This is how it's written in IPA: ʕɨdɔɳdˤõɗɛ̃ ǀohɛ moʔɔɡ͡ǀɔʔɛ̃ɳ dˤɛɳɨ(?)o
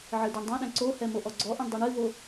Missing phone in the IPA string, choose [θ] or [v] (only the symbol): v